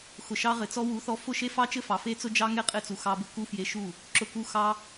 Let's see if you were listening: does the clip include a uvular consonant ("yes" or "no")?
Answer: yes